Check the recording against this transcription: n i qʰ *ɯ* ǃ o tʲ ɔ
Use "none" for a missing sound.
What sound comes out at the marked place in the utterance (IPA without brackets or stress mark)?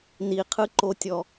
ɯ